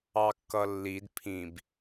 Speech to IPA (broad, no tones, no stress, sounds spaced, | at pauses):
ɑ kː ʌ lː i d pʰ ĩ b